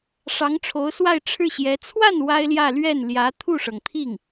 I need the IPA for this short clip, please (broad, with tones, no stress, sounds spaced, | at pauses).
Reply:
ʂ ɑ˧˥ ŋ ʈ͡ʂʰ o˧˥ ʊ̯ s w a˥˧ ɪ̯ ʈ͡ʂʰ ɻ̩˥˩ ɕ j ɛ˧˥ t͡sʰ w a˥˩ n w a˥ ɪ̯ l j ä˥˧ l ɥ ɛ˥˩ n l j ä˧˥ t̪ʰ u˥˩ ʂ ɤ˩ ŋ t̪ʰ i˥˩ ŋ